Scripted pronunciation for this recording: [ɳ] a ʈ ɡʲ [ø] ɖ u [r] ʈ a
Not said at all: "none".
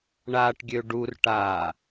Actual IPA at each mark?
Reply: ɳ, ø, r

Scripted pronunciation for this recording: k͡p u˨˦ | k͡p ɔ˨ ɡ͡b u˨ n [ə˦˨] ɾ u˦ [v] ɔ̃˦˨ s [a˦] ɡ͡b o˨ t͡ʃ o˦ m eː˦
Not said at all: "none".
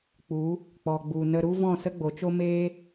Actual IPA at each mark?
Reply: ə˧, v, ə˦

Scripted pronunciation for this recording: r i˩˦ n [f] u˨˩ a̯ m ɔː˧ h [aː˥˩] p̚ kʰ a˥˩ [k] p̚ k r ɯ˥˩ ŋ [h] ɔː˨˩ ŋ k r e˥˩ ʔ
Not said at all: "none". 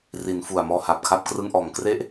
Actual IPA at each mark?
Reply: f, aː˨˩, none, ʔ

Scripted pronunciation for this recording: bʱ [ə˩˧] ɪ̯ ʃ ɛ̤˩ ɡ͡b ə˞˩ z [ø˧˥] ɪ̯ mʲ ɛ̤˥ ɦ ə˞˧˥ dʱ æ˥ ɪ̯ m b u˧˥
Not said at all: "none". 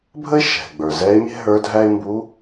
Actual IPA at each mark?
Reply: ə˥, ɛ˧˥

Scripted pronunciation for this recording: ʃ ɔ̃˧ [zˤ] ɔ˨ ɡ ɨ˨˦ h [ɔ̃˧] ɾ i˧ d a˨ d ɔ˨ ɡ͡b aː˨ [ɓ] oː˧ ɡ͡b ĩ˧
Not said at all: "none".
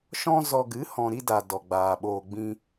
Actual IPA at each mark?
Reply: z, ɔ̃˨, ɓ

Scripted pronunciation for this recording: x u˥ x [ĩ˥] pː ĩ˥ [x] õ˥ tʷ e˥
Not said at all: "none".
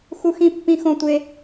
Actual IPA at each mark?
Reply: ĩ˥, x

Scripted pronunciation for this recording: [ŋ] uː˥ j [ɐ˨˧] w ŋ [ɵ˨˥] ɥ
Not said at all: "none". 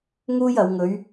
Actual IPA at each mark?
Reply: ŋ, ɐ˨˧, ɵ˨˧

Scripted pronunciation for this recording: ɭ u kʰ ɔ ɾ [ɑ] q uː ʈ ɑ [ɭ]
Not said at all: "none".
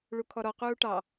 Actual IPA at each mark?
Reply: ɔ, none

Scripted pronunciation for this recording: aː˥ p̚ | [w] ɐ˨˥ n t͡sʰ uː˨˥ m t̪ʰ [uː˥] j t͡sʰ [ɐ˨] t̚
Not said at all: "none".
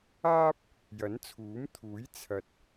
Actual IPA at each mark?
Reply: j, uː˨˥, ɐ˨

